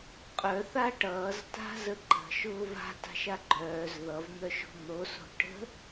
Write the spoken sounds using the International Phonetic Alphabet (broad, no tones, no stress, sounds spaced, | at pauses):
qʼ œ θ a ʈ ʌː z t a̤ z ə ǃ ə̤ ʃ ʊː v a̤ t a̤ ʃ a ɡ͡ǃ œː z ð ʌ v n̪ œ ʃ o̤ n̪ o s o̤ ʈ ə̤